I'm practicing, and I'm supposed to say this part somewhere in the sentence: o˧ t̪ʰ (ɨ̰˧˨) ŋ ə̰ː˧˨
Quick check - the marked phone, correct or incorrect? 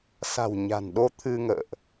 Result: incorrect